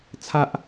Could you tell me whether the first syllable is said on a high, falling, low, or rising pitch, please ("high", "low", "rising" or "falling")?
low